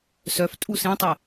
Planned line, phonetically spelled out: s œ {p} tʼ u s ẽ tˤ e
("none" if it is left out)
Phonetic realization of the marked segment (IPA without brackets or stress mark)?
f